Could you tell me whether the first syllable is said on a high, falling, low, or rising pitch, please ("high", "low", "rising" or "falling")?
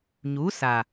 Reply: rising